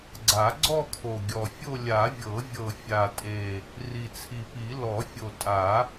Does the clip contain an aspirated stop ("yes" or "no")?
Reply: yes